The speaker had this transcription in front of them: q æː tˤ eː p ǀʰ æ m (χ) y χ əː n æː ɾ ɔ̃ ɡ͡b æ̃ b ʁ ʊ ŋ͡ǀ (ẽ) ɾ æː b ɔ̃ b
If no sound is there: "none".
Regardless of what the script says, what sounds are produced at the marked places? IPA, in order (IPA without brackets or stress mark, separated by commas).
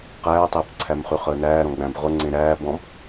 χ, ẽ